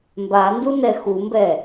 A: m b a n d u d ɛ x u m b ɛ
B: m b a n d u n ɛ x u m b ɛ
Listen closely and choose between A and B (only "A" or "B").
B